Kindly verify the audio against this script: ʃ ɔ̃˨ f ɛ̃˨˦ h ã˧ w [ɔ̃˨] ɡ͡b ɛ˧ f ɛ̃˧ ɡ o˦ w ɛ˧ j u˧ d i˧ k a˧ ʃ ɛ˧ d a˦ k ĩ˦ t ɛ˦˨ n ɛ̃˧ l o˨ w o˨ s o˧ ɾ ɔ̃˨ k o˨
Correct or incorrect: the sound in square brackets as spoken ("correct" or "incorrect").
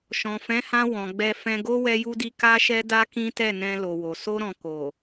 correct